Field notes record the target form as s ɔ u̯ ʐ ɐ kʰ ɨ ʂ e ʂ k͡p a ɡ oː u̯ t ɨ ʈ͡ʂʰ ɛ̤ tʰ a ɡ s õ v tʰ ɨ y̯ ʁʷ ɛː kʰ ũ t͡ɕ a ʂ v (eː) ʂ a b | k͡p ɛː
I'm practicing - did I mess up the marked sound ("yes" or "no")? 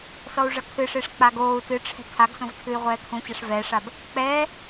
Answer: yes